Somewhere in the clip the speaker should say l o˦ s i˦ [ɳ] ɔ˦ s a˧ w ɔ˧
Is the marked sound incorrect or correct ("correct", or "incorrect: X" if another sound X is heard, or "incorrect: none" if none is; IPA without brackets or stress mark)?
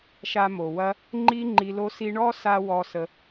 correct